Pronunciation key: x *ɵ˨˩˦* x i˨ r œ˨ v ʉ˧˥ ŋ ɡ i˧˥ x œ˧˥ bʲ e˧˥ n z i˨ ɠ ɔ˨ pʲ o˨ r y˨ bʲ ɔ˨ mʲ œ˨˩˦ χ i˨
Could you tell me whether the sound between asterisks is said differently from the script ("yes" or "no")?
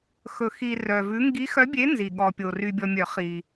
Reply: no